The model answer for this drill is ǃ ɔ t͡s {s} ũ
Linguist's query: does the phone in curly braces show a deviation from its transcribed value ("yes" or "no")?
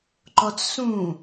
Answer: no